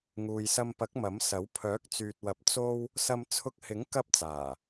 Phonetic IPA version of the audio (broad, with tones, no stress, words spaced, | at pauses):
ŋuː˨jsɐ˧mpɐ˨˥k̚ mɐ˨˥msɐ˨˥w pʰœː˨˥k̚t͡syː˨t̚wɐ˨˥p̚ t͡so˥w | sɐ˧mt͡sʰʊ˧k̚hɪ˨˥ŋ kɐ˥p̚t͡saː˨˩